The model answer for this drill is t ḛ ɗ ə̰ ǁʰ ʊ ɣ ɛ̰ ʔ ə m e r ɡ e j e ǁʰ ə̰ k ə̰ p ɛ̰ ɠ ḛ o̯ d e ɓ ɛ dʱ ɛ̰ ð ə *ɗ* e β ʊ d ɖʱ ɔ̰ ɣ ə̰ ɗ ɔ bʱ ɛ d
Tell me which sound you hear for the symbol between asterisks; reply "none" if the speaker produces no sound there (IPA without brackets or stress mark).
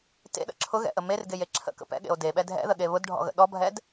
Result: ɠ